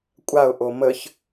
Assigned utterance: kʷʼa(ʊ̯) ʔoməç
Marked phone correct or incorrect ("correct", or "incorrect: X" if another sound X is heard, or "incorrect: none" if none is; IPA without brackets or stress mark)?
correct